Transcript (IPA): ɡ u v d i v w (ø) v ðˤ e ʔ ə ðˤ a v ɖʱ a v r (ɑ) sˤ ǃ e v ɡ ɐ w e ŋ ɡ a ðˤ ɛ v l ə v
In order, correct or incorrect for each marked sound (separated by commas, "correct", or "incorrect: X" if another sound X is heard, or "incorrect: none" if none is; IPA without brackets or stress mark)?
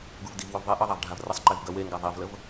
correct, incorrect: ə